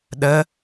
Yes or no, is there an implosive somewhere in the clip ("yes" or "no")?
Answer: yes